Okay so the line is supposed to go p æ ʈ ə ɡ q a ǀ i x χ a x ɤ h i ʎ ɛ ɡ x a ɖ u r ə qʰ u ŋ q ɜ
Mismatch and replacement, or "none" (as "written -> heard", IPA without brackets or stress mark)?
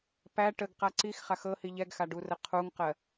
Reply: none